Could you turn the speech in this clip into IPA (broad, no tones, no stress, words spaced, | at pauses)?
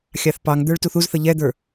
xʲɑθpɑŋd̪ə˞ɭ tuθuzθə ʎɛd̪ə˞